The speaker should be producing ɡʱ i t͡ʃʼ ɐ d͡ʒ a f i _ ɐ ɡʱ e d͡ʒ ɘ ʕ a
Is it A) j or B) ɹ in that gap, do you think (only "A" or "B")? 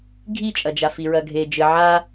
B